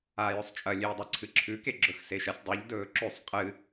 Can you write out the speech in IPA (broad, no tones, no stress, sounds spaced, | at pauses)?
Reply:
aː j ɵ sˤ t͡ʃʼ ɐ lʲ e i̯ dˤ a ǀʰ ɨ ǁʰ ʉ k e ɡ͡ǁ ɵ x s e ʃ ɐ sʲ dˤ u ʎ d ɵː ǁ ʉ sˤ qʼ ɨ